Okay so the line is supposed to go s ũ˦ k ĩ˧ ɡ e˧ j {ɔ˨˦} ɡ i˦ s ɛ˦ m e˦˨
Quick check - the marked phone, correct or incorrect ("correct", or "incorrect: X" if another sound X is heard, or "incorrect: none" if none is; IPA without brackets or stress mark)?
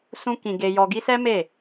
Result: incorrect: ɔ˧